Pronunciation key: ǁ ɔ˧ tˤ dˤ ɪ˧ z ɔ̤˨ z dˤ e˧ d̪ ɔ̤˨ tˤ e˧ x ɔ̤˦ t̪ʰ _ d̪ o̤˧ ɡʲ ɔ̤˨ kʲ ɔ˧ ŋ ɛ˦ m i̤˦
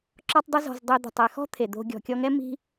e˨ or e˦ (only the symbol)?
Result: e˨